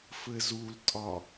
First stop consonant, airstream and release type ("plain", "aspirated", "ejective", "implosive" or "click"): ejective